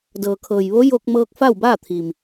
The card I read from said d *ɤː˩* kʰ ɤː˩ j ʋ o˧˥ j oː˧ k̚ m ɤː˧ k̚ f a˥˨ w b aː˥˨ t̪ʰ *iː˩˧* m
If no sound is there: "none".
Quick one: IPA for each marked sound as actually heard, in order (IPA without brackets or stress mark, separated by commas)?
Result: ɤː˩, iː˩